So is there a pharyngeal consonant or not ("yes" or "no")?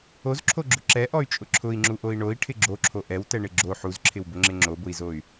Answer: yes